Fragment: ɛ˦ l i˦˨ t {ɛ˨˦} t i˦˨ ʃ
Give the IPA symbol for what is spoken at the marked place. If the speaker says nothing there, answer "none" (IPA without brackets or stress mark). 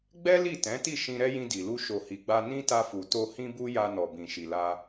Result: ɛ̃˨˦